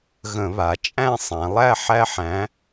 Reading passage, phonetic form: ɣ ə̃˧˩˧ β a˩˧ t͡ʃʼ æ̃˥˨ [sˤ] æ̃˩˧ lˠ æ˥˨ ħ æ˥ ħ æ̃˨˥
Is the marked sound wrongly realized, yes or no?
no